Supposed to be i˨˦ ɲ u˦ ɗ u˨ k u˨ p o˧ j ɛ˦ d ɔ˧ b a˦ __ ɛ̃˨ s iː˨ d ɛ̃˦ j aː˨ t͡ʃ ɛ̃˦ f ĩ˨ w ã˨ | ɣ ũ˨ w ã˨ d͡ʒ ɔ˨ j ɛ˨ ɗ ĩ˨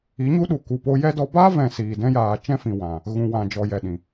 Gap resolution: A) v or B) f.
A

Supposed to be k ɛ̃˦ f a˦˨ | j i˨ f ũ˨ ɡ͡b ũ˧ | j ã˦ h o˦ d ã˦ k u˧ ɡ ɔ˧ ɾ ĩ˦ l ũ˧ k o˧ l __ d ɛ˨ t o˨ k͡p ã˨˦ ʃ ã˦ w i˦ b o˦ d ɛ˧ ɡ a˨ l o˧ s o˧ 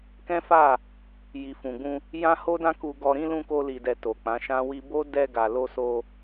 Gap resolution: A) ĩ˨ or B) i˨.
B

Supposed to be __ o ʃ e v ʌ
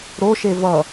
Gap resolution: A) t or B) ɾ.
B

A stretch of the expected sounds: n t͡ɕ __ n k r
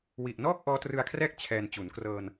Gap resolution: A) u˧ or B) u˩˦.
B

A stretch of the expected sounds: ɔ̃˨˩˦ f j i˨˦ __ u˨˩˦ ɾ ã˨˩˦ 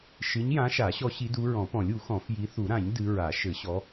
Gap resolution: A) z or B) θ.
B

